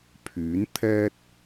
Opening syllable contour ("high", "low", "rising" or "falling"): rising